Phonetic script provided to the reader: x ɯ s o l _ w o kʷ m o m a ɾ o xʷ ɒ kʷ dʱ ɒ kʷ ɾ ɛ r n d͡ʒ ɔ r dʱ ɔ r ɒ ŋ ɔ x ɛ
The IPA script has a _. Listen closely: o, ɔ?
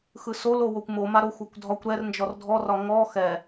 o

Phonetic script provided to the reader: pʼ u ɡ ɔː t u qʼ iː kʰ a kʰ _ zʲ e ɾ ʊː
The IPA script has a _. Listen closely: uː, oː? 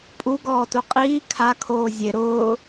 oː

